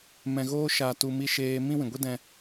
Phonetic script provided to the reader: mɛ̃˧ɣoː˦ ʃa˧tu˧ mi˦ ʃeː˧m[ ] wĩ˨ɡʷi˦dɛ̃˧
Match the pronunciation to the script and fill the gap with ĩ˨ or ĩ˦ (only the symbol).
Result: ĩ˦